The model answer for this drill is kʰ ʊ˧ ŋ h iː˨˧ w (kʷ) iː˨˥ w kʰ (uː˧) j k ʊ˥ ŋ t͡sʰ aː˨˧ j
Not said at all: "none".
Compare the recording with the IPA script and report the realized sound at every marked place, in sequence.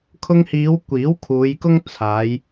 kʷ, uː˨˧

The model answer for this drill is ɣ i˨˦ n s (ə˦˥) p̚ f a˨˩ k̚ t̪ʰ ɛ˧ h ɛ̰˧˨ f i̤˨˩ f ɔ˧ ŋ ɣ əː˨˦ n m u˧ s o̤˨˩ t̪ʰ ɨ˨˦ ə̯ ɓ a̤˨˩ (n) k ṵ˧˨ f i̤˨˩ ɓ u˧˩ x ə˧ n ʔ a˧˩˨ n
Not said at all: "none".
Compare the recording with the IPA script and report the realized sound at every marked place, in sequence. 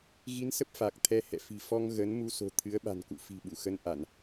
ə˦˥, n

